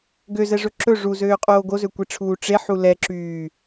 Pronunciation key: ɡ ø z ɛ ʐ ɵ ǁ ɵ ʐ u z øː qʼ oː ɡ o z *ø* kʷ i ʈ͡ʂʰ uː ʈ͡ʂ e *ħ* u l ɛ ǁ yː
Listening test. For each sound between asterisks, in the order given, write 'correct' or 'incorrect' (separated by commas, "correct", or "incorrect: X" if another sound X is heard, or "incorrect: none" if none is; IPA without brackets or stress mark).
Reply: correct, correct